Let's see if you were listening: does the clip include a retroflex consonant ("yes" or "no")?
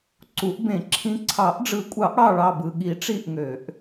yes